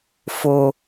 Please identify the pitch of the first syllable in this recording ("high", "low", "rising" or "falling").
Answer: high